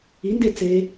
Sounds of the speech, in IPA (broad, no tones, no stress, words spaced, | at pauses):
inde t͡se